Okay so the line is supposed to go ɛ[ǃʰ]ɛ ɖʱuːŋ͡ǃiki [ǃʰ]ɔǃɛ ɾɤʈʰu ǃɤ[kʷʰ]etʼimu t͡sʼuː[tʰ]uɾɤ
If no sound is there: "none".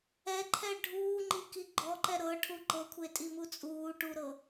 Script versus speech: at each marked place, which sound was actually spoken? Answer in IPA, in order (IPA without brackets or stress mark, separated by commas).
ǃʰ, ɡ͡ǃ, kʷʰ, ʈ